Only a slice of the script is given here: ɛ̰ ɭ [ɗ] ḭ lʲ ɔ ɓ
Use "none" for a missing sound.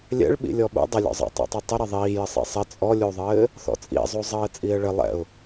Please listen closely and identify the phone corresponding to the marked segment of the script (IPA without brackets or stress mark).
ɓ